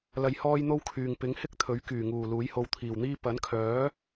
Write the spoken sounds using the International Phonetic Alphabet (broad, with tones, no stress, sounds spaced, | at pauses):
l ɐ˧ j h ɔː˥ j n̪ o˥ w kʰ yː˨ ŋ p ɪ˨˥ ŋ h ɪ˥ k̚ t̪ʰ ɵ˨˥ ɥ k yː˨˩ ŋ uː˨˩ l uː˨˥ j h o˧ w t̪ʰ iː˨˩ w n̪ iː˥ p ɐ˨˥ n kʰ œː˨˥